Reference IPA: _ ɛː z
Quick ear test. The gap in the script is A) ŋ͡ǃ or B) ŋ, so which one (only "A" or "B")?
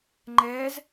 A